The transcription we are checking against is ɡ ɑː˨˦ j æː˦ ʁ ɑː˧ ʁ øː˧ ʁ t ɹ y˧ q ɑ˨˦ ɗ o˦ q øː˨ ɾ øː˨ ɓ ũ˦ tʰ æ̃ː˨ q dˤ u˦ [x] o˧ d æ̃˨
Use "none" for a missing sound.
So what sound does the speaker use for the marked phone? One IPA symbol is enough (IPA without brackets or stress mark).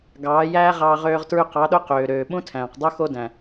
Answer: x